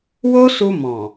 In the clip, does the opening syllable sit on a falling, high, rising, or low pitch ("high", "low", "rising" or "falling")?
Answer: high